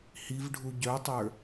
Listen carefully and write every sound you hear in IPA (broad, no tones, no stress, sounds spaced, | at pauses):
h i v ɖʱ u ɟ œ tˤ ə˞